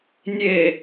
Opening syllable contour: low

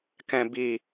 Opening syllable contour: low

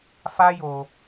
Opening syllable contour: high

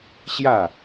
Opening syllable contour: falling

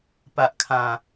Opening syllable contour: low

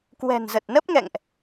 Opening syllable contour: low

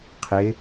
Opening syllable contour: rising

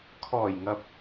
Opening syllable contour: low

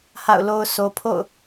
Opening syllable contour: falling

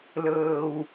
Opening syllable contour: low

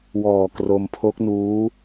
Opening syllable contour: low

